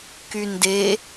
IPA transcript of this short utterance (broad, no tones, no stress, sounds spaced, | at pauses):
k y n d e